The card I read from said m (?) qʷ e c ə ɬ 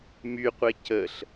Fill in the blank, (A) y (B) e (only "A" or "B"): A